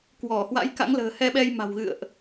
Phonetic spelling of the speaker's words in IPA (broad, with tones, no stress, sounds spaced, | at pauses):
k w ɔ˧˩ h w a̰˧˥ j k a̰˧˥ ŋ l ə̤ː˨˩ h ɛ˧ ɓ ɛ˧ j m a̤˨˩ w ɣ ɨ̰˧˨ ə̯ ʔ